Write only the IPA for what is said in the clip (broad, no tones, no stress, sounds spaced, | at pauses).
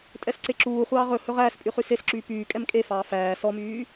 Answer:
tʼ ɛ s ǀ e ǁ uː χʷ ɑː ʁ ɵ h ɵ ʁ æː s pʼ y χ y s e s ǁ yː p yː kʼ ɛ m kʼ e f ɑː f æː s ɔ m yː